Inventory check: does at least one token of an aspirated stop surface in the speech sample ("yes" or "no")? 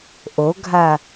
no